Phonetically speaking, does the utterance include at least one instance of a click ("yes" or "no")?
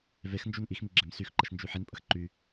yes